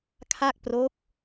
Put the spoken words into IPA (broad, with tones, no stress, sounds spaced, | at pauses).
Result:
kʰ a˥˩ k̚ p r o˦˥ k̚